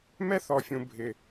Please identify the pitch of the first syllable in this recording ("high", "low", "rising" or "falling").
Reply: high